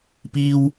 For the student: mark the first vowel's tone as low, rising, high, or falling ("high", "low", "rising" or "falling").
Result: high